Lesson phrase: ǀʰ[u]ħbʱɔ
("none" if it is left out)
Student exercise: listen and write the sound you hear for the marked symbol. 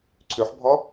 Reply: ʉ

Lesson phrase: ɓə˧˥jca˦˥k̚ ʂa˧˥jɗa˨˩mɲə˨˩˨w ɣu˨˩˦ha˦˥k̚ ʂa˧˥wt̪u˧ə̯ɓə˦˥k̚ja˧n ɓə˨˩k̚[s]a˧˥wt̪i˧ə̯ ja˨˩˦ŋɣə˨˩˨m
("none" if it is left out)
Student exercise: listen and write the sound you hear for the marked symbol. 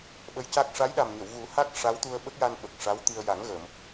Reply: ʂ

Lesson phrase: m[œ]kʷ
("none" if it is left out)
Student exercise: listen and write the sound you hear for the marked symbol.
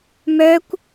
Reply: œ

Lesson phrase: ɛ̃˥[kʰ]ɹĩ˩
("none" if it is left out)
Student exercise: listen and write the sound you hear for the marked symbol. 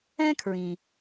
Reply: kʰ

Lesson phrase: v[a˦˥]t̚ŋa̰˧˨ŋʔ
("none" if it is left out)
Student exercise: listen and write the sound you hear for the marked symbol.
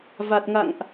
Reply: a˨˩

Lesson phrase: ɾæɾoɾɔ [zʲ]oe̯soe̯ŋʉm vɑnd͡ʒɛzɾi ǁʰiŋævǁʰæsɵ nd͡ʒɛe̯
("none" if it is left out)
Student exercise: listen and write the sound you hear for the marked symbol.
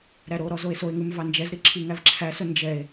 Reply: z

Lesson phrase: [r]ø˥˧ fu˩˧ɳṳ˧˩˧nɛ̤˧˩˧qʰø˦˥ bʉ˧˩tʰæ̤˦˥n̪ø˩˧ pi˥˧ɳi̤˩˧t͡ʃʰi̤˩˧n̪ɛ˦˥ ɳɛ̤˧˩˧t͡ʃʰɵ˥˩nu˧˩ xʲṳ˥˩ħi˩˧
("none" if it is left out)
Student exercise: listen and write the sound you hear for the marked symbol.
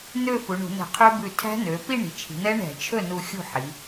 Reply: n̪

